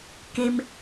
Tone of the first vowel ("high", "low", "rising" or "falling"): low